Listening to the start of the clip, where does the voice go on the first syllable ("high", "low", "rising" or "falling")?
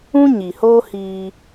high